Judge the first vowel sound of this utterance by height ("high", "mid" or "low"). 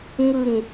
high